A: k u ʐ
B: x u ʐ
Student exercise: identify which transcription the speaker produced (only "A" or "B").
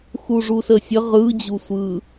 B